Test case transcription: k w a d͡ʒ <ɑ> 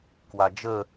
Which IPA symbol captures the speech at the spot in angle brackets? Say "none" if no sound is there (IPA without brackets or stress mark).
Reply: ə